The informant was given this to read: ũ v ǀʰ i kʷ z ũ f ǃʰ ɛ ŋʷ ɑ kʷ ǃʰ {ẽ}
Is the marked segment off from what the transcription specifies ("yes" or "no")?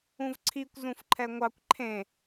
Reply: no